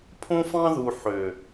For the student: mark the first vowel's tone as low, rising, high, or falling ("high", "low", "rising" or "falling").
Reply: high